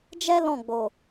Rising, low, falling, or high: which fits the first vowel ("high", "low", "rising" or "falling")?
high